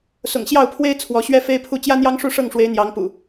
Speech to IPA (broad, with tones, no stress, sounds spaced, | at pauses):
s ʊ̰˨˩ ŋ ɕ j ɑ˥˨ ʊ̯ pʰ w e˦ ɪ̯ t͡sʰ w ɔ˨˦ ɕ ɥ ɛ˦ f e˦ ɪ̯ pʰ u˥˨ t͡ɕ j ä˦ n̪ j ɑ˦ ŋ ʂ u˥˨ ʂ ɤ˥˨ ŋ ʂ w e˨˦ ɪ̯ n̪ j ɑ˨˦ ŋ p ṵ˨˩